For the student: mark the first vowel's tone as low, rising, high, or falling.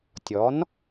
rising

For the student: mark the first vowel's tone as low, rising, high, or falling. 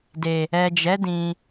low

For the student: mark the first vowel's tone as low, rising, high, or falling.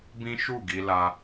high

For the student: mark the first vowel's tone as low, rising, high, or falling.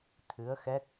rising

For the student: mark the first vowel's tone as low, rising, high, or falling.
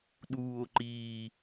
low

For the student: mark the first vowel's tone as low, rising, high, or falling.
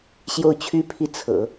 falling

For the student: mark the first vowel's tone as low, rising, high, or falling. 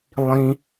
high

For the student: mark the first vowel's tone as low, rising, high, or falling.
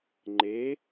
rising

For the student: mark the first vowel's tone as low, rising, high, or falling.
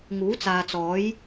rising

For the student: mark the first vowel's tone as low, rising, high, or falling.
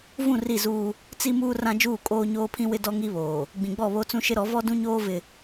falling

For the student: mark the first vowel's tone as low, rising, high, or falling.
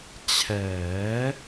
rising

